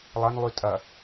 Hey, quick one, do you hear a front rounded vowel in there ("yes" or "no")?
yes